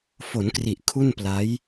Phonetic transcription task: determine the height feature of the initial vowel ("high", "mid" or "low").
mid